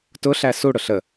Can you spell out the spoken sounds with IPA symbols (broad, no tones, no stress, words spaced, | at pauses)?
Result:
tʊɬæ suɽʊ ɬə